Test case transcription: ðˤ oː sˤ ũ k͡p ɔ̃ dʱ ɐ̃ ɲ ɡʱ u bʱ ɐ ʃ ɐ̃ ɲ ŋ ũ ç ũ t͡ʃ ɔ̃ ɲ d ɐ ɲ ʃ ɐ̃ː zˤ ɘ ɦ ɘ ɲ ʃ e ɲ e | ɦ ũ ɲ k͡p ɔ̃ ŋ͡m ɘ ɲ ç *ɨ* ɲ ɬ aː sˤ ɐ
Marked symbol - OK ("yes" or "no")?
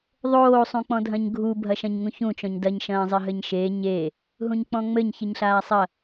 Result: yes